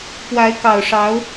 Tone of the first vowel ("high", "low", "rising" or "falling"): rising